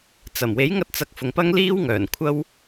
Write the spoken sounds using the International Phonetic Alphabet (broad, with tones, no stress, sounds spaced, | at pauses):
t͡s ɐ˨˩ m w e˨˥ j ŋ ɐ˧ t̚ t͡s ɐ˨˥ k̚ f ʊ˨ ŋ p ɐ˥ ŋ l iː˥ w ŋ œː˨˩ n kʷʰ ɐ˥ w